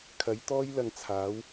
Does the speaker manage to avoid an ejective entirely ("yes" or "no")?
yes